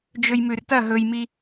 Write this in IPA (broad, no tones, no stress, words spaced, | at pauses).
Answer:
d͡ʒɵjmʉrtɐ ɦɵjmi